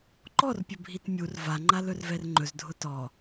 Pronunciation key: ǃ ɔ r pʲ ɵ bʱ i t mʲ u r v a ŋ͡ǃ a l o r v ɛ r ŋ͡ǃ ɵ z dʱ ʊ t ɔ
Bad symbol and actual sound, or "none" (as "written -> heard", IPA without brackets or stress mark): o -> ɵ